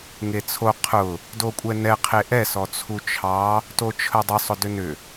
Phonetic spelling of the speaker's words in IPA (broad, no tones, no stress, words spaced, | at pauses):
ŋet͡sʰo qʰʊ | dokʷʼɛnɛ qʰeʔɛ sɔt͡sʰut͡ʃʰɑ | tot͡ʃʰədˤʊ sˤʊdʏnʏ